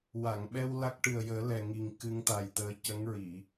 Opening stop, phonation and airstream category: implosive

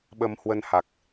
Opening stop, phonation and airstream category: implosive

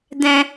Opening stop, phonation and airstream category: plain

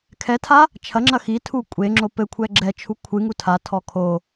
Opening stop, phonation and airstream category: aspirated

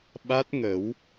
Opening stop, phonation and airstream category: implosive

